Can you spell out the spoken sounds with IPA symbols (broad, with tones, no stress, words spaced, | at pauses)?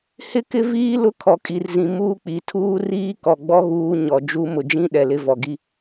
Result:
hɪ˦kɪ˦viː˦ lʊ˦kʰɔ˨kʼi˨rzĩ˨ muː˦k͡pi˨ tʰuː˦riː˦ kɔ˨ɡ͡bɔ˦ ɣuː˦ɲɔ˨d͡ʒu˦ mʊ˨d͡ʒĩ˦ ɗɛ˨lɪ˦vɔ˨ ɡi˦